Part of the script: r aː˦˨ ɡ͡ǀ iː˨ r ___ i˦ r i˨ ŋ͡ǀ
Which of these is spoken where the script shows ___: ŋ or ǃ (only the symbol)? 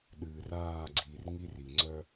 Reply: ŋ